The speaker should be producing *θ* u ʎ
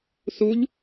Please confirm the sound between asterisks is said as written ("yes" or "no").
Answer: yes